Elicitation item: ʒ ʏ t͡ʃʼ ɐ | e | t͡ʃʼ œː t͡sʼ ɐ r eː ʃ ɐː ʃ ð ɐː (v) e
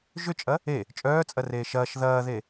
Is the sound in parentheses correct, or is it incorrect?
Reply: incorrect